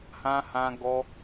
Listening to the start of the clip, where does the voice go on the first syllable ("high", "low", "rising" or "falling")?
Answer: high